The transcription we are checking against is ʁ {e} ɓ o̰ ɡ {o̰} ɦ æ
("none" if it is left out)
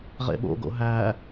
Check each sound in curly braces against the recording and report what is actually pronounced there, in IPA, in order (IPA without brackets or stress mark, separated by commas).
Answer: ḛ, o̰